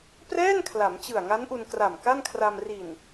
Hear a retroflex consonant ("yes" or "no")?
no